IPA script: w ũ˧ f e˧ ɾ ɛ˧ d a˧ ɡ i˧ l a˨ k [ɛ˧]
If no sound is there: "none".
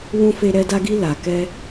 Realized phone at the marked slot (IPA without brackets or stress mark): ɛ˧